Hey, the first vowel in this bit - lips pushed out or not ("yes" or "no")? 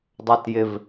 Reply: no